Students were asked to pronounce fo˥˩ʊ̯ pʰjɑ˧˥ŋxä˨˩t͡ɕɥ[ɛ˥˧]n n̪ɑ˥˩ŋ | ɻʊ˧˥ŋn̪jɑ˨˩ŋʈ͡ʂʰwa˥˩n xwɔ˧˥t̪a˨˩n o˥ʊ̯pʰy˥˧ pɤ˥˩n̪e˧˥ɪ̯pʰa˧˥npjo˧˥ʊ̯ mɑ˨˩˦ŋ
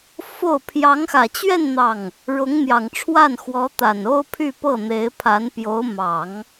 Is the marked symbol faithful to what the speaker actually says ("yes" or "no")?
yes